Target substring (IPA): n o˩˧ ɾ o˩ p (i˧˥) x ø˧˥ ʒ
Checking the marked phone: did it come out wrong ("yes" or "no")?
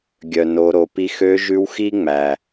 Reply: yes